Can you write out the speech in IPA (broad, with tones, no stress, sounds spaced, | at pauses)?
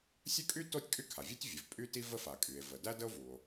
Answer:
sʲ ə˥ kʼ y˥ t o˥ tʲ kʼ y˥ kʰ a˩ vʲ u˥ tʲ vʲ ə˩ v pʼ y˥ t i˥ v ə˥ f a˩ kʼ y˩ e̯ v ə˩ d æ˥ d ə˥ o̯ v u˩ o̯